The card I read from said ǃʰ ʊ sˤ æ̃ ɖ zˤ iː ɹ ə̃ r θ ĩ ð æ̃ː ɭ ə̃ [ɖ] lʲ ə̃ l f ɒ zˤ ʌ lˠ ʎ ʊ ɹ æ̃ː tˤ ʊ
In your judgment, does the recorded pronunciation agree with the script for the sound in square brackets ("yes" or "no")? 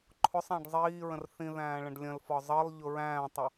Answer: yes